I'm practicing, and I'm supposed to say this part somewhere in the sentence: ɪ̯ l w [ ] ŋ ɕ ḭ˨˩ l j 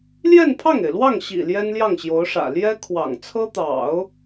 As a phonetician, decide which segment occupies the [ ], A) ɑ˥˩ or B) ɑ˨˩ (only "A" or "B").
A